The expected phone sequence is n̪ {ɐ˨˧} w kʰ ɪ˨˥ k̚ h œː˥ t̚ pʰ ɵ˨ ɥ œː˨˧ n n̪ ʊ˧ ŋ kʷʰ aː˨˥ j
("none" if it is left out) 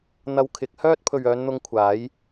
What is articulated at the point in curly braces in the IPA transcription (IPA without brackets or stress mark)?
ɐ˧